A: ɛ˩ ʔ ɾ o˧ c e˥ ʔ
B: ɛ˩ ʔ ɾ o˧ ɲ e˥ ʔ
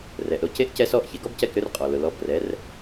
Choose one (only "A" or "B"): A